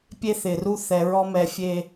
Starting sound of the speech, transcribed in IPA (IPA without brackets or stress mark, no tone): pʲ